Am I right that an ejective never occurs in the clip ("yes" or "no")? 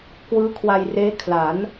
yes